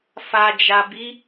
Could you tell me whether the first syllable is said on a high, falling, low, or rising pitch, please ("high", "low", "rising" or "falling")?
low